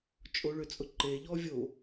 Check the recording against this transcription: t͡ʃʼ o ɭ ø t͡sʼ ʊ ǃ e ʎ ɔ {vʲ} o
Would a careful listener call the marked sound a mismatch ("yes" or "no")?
no